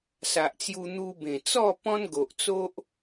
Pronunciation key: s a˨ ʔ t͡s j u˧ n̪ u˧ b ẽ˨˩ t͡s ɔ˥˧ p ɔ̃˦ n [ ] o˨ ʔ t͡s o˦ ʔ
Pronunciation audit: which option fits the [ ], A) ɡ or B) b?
A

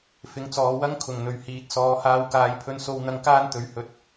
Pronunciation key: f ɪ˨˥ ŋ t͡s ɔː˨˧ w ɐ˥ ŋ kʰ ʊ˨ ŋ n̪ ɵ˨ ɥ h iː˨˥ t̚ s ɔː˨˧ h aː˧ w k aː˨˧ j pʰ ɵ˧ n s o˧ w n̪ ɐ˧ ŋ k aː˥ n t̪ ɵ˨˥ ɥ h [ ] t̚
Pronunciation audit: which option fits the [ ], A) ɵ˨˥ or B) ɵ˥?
A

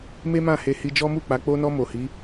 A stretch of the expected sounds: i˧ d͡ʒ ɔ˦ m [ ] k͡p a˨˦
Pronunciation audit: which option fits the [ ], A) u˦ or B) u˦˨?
B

